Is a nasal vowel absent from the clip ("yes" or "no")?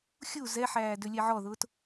yes